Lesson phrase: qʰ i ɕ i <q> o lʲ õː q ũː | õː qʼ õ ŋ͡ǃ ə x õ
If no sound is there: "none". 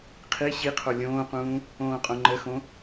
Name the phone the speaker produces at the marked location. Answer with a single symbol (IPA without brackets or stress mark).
qʰ